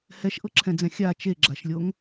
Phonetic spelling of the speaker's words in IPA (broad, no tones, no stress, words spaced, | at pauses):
hɛʃʔɤǁʰɛ̃d͡zɛ̃ xʲa t͡ʃeɡ͡ǁaʃlʲoŋ